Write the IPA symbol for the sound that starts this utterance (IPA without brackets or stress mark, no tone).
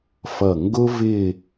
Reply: f